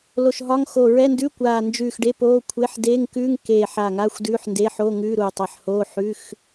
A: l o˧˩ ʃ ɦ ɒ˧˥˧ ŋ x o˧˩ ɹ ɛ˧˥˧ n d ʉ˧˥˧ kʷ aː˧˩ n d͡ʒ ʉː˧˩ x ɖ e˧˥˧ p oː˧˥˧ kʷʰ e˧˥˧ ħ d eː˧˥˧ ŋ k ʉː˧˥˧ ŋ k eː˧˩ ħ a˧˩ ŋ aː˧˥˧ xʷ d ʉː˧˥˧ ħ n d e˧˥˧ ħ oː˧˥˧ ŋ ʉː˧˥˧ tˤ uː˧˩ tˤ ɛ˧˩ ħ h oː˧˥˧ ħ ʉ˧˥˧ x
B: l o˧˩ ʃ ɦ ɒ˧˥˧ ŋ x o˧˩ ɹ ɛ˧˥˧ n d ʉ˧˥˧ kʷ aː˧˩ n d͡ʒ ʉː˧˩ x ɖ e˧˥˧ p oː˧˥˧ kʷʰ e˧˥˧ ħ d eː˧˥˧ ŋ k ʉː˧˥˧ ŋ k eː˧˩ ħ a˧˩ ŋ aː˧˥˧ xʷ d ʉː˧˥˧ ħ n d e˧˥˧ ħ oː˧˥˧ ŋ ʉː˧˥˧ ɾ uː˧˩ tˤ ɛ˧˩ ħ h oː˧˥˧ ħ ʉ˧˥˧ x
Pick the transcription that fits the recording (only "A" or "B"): B